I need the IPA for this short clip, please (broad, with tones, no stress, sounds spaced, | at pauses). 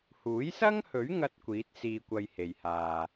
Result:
h uː˨˥ j s ɐ˥ ŋ h ɵ˨˥ ɥ ŋ ɐ˥ t̚ kʷ iː˨˥ t̚ s iː˧ kʷ ɐ˧ j h e˨˩ j h aː˨